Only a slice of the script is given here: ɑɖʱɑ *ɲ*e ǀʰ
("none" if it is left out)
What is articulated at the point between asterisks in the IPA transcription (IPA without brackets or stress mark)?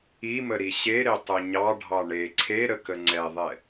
ɳ